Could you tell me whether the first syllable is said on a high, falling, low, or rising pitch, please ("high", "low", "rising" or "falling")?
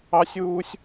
high